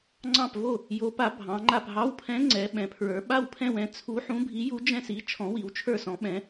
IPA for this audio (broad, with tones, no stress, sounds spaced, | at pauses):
ŋ͡ǀ ɑ̃˥˧ p v o˥˧ | j o˧˥ p a˧˥ bʱ ɑ̃˧˥ ŋ͡ǃ a˥˧ p ɦ ɑ˧˥ w pʰ ɛ̃˧˥ ŋ͡ǀ ɛ˧˥ ɓ ɛ̃˧˥ pʰ ɹ ə˞˧˥ ɓ a˥˧ w pʰ ɛ̃˥˧ w ɛ̃˧˥ t͡sʰ u˧˥ ħ ũ˧˥ bʱ i˧˥ j u˧˥ d͡ʒ ɛ̃˥˧ s i˧˥ t͡ʃʰ ɔ̃˧˥ w i˧˥ w t͡ʃʰ ə˞˥˧ s ɔ̃˧˥ ɓ ɛ̃˧˥